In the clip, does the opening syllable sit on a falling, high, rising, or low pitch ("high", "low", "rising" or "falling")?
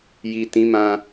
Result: low